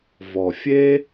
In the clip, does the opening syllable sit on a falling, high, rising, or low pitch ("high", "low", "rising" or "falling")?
low